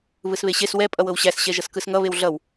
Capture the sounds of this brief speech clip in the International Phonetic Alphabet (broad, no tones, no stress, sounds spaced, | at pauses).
β ɯ s β e ɕ e s w ɛ pʼ ʌ w ɤ w ɕ æ s ɕ ɛ ʒ ʌ s k ɯ s ŋ ʌ β e w ɮ ʌ w